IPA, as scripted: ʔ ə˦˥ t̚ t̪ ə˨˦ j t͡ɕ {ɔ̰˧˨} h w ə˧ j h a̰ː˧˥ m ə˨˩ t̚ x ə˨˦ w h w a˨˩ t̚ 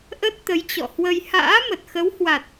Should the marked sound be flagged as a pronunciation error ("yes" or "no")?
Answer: no